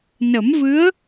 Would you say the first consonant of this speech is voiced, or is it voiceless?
voiced